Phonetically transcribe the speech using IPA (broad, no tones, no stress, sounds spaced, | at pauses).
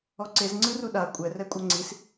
ɔ ǀ e z ŋ͡ǀ ɯ r u ɗ a kʷʼ ɛ r ɛ kʷʼ ɤ ŋ͡ǀ i s